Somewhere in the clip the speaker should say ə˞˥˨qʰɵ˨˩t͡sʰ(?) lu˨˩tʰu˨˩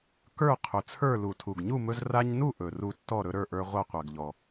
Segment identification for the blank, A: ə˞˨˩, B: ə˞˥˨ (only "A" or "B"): B